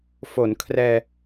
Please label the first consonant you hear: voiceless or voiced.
voiceless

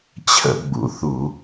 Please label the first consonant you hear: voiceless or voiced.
voiceless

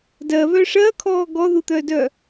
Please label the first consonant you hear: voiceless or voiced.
voiced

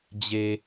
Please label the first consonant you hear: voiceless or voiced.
voiced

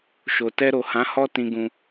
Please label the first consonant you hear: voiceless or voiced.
voiceless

